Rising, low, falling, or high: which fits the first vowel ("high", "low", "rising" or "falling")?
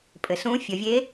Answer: low